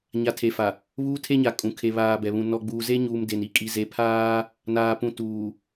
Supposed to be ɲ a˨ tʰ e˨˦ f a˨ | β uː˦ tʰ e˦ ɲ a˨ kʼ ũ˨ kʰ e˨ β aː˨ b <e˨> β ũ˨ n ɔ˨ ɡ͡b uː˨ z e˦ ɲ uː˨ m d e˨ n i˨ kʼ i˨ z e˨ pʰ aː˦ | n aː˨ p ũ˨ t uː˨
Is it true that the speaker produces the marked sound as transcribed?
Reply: no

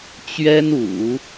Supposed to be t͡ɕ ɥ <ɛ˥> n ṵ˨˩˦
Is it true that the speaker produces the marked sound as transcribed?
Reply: yes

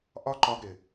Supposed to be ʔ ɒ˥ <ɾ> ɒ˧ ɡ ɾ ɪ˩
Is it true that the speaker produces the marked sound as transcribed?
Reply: no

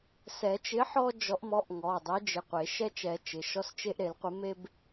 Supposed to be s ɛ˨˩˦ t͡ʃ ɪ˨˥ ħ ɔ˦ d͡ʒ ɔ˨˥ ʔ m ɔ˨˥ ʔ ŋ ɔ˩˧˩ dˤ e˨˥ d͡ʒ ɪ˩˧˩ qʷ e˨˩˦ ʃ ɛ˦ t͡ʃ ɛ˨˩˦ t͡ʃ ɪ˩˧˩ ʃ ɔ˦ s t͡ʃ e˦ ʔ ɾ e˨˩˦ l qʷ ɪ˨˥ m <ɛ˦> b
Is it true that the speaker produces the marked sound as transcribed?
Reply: no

